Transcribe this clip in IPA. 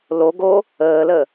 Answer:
l o ɡ o | əː l ə

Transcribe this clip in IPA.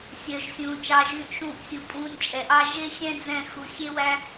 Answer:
sʲ œ˨ ʒ sʲ ũː˨ t͡ʃ ɑ˧ ʒ yː˧ ʔ ʃ ũː˦˨ ʔ sʲ u˧ pʼ ũː˧ nʲ t͡ʃʼ ɛ˨ ʔ ɑ˦ ʒ e˦ xʲ ɛ̃˦ d͡z ɛ̃˦˨ x u˧ xʲ e˦ w æ˦

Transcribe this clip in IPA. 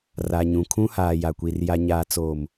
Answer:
r a˨ ɲ ũ˨ kʰ ũ˦ h aː˨ j a˨ kʷ i˨ r j a˨ ɲ aː˨ t͡s oː˨ m

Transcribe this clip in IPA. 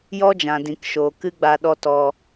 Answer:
j ɔ˦ d͡ʒ ã˨ d ĩ˨ k ʃ oː˨ k ɨ˦ ɡ͡b a˧ ɗ ɔ˧ t ɔ˨

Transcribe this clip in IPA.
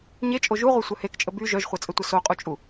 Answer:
ɲ e t͡ʃʼ o ʒ u ʁʷ ɜ sʷ œ h e k t͡ʃʼ ə b y ʒ œ ʒ χʷ ɜ t͡sʼ ə tʷ ə s o qʼ u t͡ʃʼ u

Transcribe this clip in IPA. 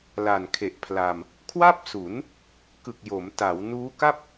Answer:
l a˨˩ n kʰ e˨˩ ʔ pʰ l a˧ m | kʰ w a˥˩ p̚ s u˩˦ n | k ɯ˨˩ k̚ j o˩˦ m t a˩˦ w n uː˦˥ k a˥˩ p̚

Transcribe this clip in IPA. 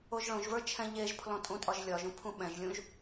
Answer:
o ʒ ɭ õ ʒ v ə˞ t͡ʃʰ ɛ̃ ʎ e ʒ pʰ l ɔ̃ tʼ ũ tʼ ɒ ʒ lʲ ɒ ʒ ũ pʰ ũ ɓ ɛ̃ ʒ lʲ ũ ʒ

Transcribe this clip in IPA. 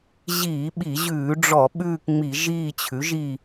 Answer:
ʑ iː˧˩˧ ɓ i˧˩˧ ʑ ʉː˧˩˧ ɖ͡ʐ ɔ˧˩˧ ɓ ʉː˦˨ k ŋ͡m i˧˩˧ ʒ iː˦˨ t͡ɕʰ ʉ˩˥ ʒ i˦˨

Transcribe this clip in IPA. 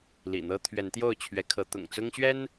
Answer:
l ḭ˨˩ n̪ ɤ˦ t̪ʰ ɥ ɛ˨˦ n t̪ j o˥˨ ʊ̯ t͡ɕʰ ɥ ɛ˨˦ kʰ ɤ˨˦ t̪ ʊ̰˨˩ ŋ t͡s ʊ˦ ŋ ɕ ɥ ɛ˦ n

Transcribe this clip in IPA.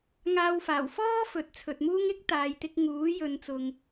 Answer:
ŋ aː˧ w f aː˨˩ w f ɔː˥ f ɵ˨ t̚ t͡sʰ ɵ˨ t̚ m uː˥ ŋ ɪ˥ k̚ t̪ aː˨ j t̪ ɪ˧ k̚ ŋ uː˨˥ j ɵ˨˧ n t͡s ʊ˨ ŋ

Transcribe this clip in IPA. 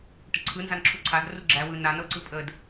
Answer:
ʈ ə ǀʰ ɯ n z a n ǁʰ u ǀʰ a z r u ɡ͡ǁ æ w ɯ n a n ɤ ǀ ɯ pʼ ə d

